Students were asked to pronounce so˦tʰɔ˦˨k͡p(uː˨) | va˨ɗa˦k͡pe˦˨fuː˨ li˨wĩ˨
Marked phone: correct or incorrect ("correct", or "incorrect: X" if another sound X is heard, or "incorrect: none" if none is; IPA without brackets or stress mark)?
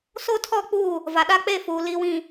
incorrect: uː˦˨